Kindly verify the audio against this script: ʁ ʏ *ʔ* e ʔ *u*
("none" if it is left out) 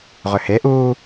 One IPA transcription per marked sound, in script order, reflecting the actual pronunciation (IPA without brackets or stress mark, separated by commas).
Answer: h, uː